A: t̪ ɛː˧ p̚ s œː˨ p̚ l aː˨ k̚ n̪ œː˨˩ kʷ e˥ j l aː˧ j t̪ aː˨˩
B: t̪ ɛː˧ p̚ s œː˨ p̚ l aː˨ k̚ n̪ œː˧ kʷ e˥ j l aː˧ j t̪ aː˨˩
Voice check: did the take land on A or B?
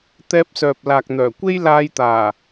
A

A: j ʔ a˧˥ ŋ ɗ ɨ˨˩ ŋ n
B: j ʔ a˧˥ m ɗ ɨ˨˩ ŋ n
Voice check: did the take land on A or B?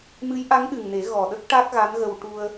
A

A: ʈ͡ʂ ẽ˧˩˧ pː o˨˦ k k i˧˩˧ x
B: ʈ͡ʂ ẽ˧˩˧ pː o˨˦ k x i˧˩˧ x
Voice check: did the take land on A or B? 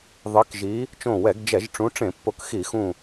B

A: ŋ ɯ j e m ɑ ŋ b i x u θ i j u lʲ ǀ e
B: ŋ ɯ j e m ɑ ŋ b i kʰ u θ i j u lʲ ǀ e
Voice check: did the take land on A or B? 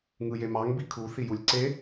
B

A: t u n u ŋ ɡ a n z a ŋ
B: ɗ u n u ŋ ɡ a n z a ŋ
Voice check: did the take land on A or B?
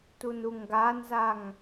A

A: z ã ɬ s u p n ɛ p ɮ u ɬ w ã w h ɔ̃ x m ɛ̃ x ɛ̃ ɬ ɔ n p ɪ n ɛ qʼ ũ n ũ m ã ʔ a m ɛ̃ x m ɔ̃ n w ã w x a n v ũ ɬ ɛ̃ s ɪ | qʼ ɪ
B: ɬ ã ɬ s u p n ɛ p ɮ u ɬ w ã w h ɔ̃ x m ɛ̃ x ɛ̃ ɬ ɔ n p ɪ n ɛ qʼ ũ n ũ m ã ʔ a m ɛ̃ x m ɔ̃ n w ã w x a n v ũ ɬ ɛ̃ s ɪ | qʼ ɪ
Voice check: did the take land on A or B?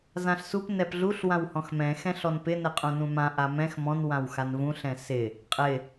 A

